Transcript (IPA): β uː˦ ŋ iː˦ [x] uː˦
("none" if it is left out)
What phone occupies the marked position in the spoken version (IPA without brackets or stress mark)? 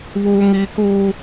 k